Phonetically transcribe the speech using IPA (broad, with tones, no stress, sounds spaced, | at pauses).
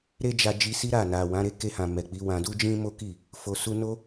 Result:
ɾ e˦ d͡ʒ a˧ d͡ʒ i˧ s i˦ ɾ a˦˨ n a˨ w ã˨˦ ɾ e˦ k e˧ h ã˨ m ɛ˨ k͡p i˨˦ w ã˧ d u˦ d͡ʒ ĩ˦ m o˦ k i˦˨ | f o˨ s u˧ n o˦